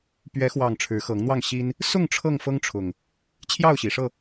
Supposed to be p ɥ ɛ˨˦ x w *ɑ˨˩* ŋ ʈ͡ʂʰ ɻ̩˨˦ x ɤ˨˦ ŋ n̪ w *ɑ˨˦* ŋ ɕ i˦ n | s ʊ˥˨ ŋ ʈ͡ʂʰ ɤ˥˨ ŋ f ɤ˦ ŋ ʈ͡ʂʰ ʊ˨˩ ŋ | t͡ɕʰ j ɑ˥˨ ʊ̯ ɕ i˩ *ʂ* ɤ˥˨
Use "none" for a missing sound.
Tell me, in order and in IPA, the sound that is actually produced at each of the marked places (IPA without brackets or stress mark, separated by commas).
ɑ˨˩, ɑ˥˨, ʂ